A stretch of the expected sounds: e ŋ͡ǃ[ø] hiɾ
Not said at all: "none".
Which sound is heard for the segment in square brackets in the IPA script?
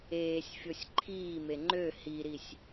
ø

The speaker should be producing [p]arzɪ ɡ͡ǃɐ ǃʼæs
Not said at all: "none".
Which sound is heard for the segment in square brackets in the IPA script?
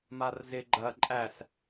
m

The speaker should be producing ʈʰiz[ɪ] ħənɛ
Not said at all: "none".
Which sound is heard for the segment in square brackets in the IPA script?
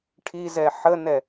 ɛ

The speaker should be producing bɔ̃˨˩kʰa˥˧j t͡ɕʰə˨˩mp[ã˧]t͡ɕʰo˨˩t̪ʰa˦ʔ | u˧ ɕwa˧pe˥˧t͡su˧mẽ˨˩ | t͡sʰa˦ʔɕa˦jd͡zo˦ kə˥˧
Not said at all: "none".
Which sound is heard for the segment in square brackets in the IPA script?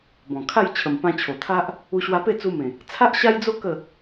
ã˧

